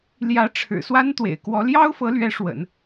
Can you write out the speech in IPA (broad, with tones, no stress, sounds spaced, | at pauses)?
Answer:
l j ä˧˥ ʈ͡ʂʰ ɻ̩˨˩ s w a˥ n t̪ w ḛ˨˩ ɪ̯ k w ɔ˧˥ l j ɑ˥ ʊ̯ f ɤ˧˥ l ɥ ɛ˧˥ ʂ w ə̰˨˩˦ n